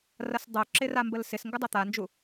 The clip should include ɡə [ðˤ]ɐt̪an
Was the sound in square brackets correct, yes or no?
no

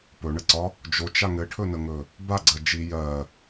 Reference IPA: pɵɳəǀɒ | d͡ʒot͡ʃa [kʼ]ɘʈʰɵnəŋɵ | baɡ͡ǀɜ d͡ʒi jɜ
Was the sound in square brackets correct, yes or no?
no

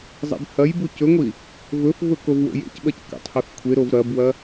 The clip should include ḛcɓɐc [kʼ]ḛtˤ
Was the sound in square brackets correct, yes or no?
no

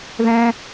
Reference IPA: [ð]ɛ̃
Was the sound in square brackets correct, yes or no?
yes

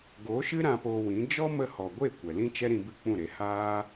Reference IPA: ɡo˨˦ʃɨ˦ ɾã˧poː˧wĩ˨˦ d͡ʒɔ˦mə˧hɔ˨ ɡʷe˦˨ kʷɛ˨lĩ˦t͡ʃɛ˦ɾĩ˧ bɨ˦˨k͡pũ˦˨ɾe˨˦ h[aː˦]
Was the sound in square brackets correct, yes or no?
yes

